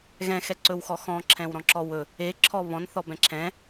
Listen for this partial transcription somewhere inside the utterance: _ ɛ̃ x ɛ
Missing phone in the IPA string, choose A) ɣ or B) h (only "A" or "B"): A